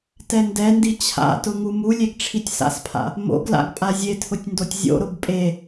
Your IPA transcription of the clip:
tɛndɛndi t͡ɕʰa̰tʊ ŋumulʲeɡ ʈ͡ʂʰitʲsa̰spʰa̰ | mo̰ɡla̰ɡ pʼazʲetʰʊtʲ ndotʲzʲo̰ɾʊb pʼe

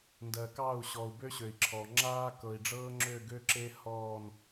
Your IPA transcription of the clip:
ndɜ˨kɑ˦˨u̯ ɕɔ˨u̯ bø˦ ɕø˨i̯ǁʰɔ˨ ŋ͡ǁaː˦kɤ˨i̯ɖ͡ʐɤː˦ŋ͡ǁø˦˨ ɡø˦ǁe˦ hɔː˦˨n

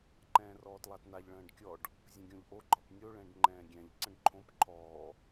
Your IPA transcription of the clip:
ǃɛ̃ːrɔːtlˠatnaʎ ɭə̃ːɖkʲɔɖ | zʲə̃ɡʲõʎʔo ɡ͡ǃɒpnʲo ɭɛ̃ɖŋ͡ǃɛ̃ːɡʲɛ̃ʎ ǀə̃ɖǃʰõp ǃʰɔː

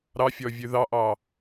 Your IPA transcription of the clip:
ɾɑfʲɔvʲʉ ðɑʔɑ

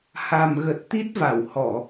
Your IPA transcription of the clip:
ha˨˩mɣə˨˩t̚ t̪i˦˥t̚va˧˩whɔ˧˩˨

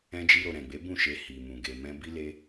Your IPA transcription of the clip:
ɛ̃˧d͡ʒi˧ɾo˨ ɾɛ̃˨ɡ͡be˨˦ bũ˦˨ʃe˧ hi˨mũ˨ ɡe˨mɛ̃˧ bi˦le˦

